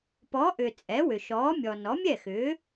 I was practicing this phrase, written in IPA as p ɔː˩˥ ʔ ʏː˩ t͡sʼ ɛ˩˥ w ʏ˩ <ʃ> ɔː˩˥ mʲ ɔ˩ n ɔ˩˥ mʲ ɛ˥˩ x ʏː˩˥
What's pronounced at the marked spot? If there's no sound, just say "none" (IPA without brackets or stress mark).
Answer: ʃ